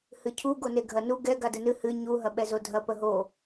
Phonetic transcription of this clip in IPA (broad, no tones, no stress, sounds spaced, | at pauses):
h ɨ cʰ u ɡ o n e ɡʱ ɐ n u ɡ ɛ ɡ a d ə n ɨ h ɨ ɲ u ɦ ɐ ɓ ɛ z o dʱ ɐ p ə ɦ o